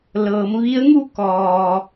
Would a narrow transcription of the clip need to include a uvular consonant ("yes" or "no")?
no